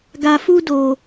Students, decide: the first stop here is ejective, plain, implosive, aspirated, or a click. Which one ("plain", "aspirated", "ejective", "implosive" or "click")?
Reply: plain